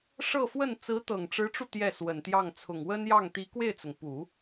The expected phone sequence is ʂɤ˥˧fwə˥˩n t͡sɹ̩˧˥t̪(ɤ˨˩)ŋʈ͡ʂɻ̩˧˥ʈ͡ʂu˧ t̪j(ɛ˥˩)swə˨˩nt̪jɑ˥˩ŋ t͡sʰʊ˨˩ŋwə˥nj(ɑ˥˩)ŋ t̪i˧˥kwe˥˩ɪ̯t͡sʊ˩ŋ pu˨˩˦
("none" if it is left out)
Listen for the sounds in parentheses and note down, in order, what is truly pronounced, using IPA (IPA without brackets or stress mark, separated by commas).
ɤ˨˩, ɛ˥˩, ɑ˥˩